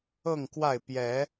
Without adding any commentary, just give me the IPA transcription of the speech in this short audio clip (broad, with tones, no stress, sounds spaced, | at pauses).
ɤ˥˨ ŋ k w a˥˨ ɪ̯ p j ɛ˨˦